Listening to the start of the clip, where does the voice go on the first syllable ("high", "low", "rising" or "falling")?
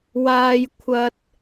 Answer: high